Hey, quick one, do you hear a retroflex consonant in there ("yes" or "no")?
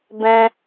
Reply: no